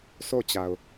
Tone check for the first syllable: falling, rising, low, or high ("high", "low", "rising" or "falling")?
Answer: falling